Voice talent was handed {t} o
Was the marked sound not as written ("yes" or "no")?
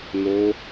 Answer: yes